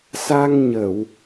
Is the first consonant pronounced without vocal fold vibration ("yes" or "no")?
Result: yes